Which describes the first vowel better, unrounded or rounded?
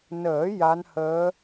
unrounded